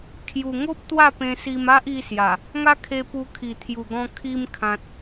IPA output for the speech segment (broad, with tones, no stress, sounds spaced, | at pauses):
kʰ j u˨˩ ŋ o˦ p̚ t̪ w a˥˧ p ẽ˧ s i˧ m a˦ ʔ i˧ s j a˨˩ | ŋ a˦ kʰ e˧ p u˧ kʰ i˨˩ t̪ʰ j u˨˩ ɡ ɔ̃˧ kʰ i˧ m kʰ ã˨ t̚